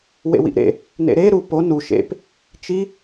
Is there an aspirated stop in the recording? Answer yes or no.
no